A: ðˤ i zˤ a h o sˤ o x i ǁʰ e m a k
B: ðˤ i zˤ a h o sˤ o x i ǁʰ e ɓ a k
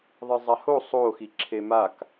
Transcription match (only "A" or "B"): A